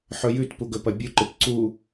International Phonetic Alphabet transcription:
ħ ɵ j ʉ t p u ɡ ɵ p ɐ bʲ u ǃ ɨ p ǀ u

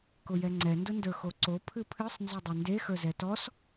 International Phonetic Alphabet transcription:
k ʊ j ɛ ŋ͡ǀ ɛ n d ʊ n d ə˞ x o ǀ o pʰ ɨ pʰ ɨ sˤ n z ɵ dˤ e n d e x ə˞ z ɛ t ɔ s

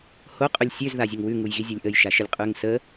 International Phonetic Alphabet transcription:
h o qʼ ʉ lʲ sʲ ø z ð a zʲ ə ŋ w ʉ ŋ u j ɣ i zʲ o lʲ ʔ ə j ʃ a ʃ ə lʲ qʼ ʉ ŋ s ə

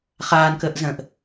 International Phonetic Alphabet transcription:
χ aː n k əː ʔ z ə̃ː ʔ

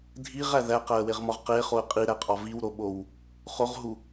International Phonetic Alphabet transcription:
dʱ i ʁ æ ð æ q æ ə̯ w e ʁ m ɒ ʁ q e χ o ə̯ qʼ i ɾ æ qʼ ɒ v i w ɾ o ɓ o w | χ o ʁ ɦ u

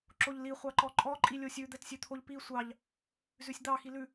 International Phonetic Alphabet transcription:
ǁ o ʎ l i χʷ ɑ ǃ ɔ ǃʼ ɔ ǃʼ i lʲ o sʲ ʉ d̪ ɛ t sʲ ʉ t̪ʰ o ʎ p i sʷ ɑ ʎ | z ʉ sʲ d̪ ɑ x i l ʉ

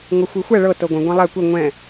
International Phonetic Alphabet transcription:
ŋ ɤ xʷ i xʷ ɛ ɭ ɤ t ɤ ɡʷ ɛ̃ ɡʷ ɛ̃ lˠ ɛ kʷ i ŋʷ ɛ̃

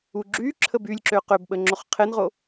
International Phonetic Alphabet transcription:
u ɡ͡ǁ y ǁʰ ə b y lʲ ǁ ø q ø b ɓ ə ŋ͡ǁ o χ qʰ e n ʁ o

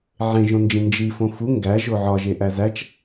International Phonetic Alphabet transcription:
ʕ ẽ ʒ õ n d͡ʒ ĩ n d͡ʒ i f õ f u ŋ ɡ æ ʒ o ʕ ɒ ʒ e ʔ æ z æ t͡ʃ

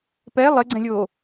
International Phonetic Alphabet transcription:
p ɛ lˠ ɘ ɡ͡ǀ ɛ̃ lʲ oː

